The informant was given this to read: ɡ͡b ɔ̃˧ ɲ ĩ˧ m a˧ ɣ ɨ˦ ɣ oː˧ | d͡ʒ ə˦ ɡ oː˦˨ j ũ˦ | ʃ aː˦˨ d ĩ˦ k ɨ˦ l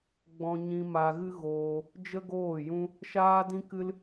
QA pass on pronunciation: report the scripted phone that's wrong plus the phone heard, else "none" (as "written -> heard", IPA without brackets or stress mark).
aː˦˨ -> aː˦